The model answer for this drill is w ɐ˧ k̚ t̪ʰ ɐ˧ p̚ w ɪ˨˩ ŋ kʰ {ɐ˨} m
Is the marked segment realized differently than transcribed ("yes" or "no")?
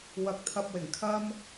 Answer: yes